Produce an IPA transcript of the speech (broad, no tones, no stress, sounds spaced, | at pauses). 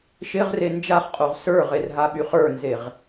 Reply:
ʃ ɪ ʁ r e n d͡ʒ a χ qʼ o ʁ s ə˞ ʁ e r ɦ a ɓ y χ ə˞ n z e ʁ